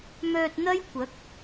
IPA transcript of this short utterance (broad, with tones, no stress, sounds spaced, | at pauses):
m œː˧ t̚ n̪ ɐ˥ j kʷ ɐ˨˥ k̚